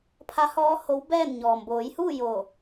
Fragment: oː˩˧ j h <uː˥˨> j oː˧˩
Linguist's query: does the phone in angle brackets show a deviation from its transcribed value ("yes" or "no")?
no